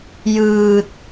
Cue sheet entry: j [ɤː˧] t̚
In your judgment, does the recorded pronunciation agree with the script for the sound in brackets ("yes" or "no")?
no